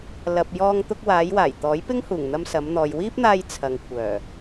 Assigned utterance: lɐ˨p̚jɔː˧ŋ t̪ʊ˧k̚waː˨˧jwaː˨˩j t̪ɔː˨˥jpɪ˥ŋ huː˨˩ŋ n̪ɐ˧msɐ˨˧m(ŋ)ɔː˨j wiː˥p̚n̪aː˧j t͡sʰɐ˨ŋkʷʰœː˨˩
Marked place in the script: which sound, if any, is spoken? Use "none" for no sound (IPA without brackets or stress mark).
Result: n̪